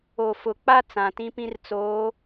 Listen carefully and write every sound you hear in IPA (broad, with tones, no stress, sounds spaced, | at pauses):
o˨ f ʊ˨ k͡p a˦ t͡s ã˨ t ĩ˦ p ĩ˦ r t͡s oː˨˦